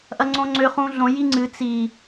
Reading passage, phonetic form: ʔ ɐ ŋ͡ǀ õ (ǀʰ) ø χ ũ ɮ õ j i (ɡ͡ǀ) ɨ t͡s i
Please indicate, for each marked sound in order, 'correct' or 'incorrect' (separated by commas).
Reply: incorrect, incorrect